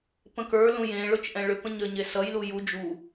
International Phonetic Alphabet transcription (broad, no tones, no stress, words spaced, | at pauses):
pə̃kə˞lũ jẽ ɭʊt͡ʃʔɛ̃ɭʏpə̃ ɲə˞ɲesʌjlu ju d͡ʒu